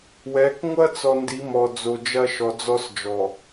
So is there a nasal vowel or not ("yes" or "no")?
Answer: no